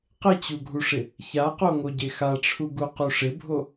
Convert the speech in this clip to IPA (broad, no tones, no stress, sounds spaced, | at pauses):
q ɪ t͡ɕ u ɡʱ u ʂ ɪ | ç a q o ŋ o ɟ e x a ʈ͡ʂʰ u ɡ u q u ʂ ɪ bʱ o